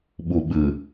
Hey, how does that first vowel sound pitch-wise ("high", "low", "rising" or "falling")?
low